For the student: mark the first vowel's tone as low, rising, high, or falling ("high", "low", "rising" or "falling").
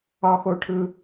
high